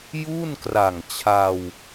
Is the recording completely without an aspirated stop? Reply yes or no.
no